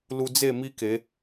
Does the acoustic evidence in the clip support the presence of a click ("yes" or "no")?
no